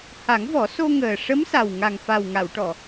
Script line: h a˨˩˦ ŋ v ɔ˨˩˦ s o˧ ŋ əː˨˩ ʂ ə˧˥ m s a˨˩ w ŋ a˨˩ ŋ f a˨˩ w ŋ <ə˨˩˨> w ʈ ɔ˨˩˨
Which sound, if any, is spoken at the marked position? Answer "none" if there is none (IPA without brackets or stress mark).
a˨˩˨